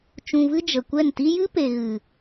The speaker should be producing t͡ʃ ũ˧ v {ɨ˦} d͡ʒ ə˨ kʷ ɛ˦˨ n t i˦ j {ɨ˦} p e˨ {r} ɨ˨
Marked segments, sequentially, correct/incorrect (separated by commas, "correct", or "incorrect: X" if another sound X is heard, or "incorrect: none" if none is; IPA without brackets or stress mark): correct, correct, incorrect: ɣ